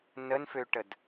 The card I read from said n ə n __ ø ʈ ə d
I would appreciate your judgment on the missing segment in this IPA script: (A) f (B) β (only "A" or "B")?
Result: A